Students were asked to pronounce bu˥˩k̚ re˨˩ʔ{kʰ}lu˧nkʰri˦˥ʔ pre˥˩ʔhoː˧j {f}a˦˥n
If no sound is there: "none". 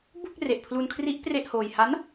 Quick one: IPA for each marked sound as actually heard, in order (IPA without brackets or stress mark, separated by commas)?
pʰ, h